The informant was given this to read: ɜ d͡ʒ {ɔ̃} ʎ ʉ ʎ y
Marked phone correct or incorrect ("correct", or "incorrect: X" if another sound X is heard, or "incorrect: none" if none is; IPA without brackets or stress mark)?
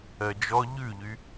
incorrect: ɔ